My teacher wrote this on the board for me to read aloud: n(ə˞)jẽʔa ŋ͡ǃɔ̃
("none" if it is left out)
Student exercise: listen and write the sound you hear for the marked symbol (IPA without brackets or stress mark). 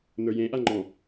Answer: ə˞